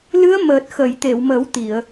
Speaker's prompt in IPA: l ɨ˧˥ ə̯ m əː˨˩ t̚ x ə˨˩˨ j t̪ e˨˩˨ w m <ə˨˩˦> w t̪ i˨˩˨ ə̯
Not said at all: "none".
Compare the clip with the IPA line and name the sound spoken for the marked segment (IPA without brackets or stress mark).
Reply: ə˨˩˦